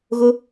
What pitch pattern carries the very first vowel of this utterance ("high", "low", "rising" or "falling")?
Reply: high